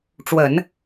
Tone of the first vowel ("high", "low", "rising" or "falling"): low